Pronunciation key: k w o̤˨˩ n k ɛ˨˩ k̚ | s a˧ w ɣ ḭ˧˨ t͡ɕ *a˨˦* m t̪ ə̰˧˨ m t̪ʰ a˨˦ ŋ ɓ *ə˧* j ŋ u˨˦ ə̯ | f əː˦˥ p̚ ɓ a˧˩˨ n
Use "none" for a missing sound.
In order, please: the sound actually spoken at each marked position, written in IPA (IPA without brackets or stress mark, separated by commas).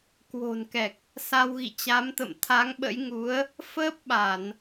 a˨˦, ə̰˧˥